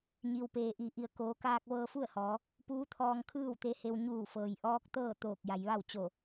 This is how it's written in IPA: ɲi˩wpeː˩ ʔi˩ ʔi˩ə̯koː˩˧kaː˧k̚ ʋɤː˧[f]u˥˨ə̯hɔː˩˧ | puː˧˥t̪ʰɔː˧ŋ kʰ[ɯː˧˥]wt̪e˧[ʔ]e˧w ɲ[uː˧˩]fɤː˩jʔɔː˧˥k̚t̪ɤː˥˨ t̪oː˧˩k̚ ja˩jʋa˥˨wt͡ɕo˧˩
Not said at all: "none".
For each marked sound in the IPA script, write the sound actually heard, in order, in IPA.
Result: f, ɯː˥˨, h, uː˧˩

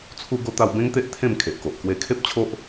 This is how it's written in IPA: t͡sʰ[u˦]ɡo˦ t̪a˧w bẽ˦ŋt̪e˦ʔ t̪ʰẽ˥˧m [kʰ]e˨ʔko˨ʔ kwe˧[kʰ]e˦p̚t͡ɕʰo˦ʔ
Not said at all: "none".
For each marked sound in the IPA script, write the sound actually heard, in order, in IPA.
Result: u˦, kʰ, kʰ

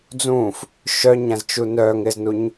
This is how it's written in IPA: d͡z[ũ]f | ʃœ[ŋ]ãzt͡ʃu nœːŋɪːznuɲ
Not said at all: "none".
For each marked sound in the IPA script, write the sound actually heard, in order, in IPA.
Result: ũː, ɲ

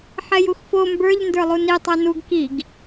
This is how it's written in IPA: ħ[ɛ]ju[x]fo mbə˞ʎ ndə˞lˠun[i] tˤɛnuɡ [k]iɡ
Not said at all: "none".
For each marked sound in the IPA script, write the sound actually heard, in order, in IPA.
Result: ɛ, x, i, k

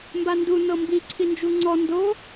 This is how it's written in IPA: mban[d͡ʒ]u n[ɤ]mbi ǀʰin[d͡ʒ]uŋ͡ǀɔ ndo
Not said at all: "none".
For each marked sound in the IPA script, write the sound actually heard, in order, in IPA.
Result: d, ɤ, d͡ʒ

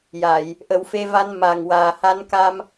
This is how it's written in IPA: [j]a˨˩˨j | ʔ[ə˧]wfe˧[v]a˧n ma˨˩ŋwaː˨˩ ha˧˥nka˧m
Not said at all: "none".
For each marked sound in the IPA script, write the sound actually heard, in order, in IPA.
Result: j, ə˨˩˦, v

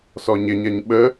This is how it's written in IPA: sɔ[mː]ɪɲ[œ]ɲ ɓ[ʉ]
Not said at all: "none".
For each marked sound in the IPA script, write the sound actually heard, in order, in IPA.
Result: ɲ, ɛ, ə

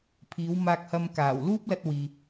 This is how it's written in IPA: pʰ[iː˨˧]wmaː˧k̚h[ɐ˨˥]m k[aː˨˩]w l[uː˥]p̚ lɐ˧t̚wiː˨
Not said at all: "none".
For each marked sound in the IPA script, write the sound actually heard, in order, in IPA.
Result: iː˨˧, ɐ˧, aː˨˩, uː˥

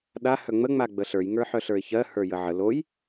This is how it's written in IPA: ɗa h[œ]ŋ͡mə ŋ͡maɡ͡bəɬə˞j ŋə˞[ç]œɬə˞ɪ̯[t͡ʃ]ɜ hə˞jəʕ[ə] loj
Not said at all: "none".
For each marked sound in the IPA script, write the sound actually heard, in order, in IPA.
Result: œ, ħ, ç, ə

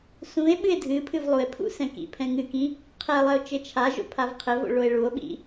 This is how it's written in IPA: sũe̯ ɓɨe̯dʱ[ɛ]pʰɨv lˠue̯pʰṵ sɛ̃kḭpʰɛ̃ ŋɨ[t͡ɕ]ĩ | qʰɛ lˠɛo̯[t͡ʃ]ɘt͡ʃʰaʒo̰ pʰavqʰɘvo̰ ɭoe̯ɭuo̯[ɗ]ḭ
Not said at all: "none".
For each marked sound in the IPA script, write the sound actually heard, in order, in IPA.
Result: ɨ, k, t͡ʃ, ɓ

